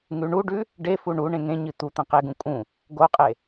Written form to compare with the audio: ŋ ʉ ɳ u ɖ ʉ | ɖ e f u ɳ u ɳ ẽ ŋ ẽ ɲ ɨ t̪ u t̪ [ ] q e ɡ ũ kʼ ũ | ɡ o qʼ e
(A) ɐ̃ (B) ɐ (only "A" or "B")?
A